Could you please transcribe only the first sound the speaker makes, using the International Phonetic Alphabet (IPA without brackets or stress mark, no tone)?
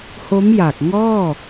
h